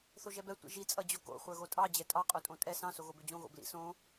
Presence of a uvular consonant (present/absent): present